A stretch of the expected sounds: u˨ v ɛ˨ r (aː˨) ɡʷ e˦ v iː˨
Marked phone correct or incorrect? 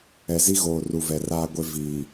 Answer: incorrect